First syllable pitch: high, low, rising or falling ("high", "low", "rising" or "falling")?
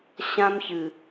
high